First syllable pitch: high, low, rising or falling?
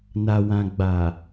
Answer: low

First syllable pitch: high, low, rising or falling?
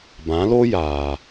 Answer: rising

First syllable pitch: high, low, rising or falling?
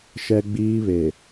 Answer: high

